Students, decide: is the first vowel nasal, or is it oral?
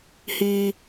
oral